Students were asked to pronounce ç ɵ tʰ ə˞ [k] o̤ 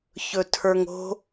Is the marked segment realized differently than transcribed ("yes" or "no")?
yes